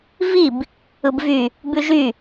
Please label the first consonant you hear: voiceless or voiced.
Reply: voiced